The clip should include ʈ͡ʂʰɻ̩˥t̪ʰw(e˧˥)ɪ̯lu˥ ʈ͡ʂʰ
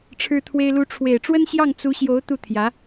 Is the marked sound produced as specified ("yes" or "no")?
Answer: no